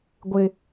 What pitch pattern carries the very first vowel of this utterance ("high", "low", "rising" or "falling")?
high